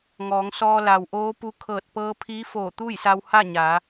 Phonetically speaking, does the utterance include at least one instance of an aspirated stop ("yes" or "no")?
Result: yes